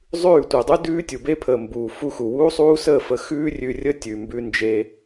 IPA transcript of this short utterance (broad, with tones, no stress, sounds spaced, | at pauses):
zˤ ʉː˦˨ tʷ əː˨ dˤ ʉ˦ d ʉː˦ tʲ u˨ b e˦ pʰ əː˨ m b uː˨ f u˧ x u˨ w uː˦ sˤ uː˦ s əː˦˨ f ə˧ x ʉː˦ rʲ ʉ˧ rʲ ə˦ tʲ ʉ˨ m b ʉ˧ n d͡ʒ e˧